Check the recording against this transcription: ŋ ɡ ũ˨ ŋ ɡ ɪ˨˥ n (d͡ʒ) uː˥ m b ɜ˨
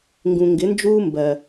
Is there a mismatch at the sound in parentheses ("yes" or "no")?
no